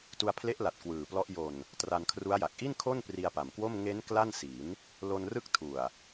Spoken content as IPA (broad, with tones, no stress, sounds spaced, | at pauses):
t u˧ a̯ pʰ l e˦˥ ʔ l a˨˩ t̚ k w ɯː˨˩ p l ɔ˦˥ ʔ j o˨˩ n | t r a˧ n kʰ r u˦˥ a̯ j a˨˩ k̚ ʔ i˥˩ n kʰ o˥˩ n p r i˧ a̯ p a˨˩ m k w o˥˩ m ŋ e˦˥ n k l a˥˩ n s i˩˦ n | l o˧ n r ɯ˦˥ k̚ tʰ u˨˩ a̯